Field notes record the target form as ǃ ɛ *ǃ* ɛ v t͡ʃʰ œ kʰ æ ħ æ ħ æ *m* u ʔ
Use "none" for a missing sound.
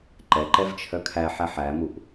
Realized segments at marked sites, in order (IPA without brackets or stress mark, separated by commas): ǃ, m